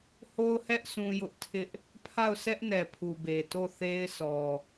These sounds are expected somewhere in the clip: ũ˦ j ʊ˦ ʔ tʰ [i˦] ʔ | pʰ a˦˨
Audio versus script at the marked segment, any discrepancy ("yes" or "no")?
yes